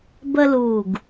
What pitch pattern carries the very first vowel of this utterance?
high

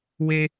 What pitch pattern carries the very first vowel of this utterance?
high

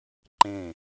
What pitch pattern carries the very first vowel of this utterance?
falling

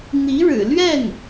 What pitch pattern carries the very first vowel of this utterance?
rising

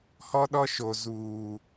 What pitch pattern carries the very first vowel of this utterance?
high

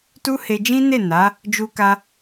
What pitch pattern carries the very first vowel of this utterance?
high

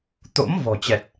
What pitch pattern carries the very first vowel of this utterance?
rising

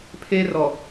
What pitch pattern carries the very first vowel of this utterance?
high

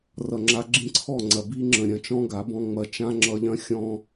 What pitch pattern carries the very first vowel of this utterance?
low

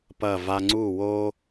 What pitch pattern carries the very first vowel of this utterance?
falling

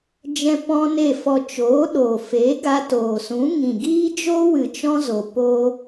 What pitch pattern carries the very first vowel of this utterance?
high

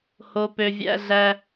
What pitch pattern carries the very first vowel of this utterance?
low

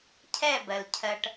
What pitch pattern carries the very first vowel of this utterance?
falling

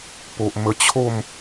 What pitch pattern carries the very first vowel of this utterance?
low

